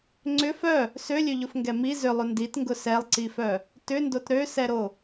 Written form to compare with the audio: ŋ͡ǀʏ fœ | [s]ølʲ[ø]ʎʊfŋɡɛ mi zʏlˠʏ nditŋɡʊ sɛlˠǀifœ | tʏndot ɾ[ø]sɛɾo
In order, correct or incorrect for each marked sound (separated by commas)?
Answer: correct, correct, correct